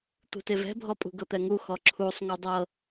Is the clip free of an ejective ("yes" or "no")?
no